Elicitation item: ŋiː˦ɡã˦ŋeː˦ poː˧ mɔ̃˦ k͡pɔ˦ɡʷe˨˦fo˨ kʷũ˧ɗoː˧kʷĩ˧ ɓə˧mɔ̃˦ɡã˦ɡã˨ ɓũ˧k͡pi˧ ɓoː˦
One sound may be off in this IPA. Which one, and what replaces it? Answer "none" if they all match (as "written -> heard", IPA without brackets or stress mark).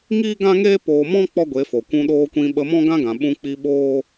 none